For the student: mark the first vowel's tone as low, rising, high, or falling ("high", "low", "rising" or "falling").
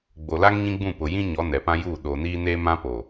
low